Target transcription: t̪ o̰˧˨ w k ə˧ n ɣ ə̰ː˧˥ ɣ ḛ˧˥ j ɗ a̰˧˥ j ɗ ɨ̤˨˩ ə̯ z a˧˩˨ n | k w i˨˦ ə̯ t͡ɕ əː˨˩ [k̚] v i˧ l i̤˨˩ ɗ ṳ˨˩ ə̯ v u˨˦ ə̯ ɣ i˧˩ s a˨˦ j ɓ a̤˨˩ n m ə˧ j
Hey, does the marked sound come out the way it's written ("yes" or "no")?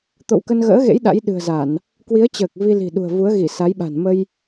yes